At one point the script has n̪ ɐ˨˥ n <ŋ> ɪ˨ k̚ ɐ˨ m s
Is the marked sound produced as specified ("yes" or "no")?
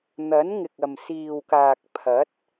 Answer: yes